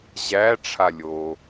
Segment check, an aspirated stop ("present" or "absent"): present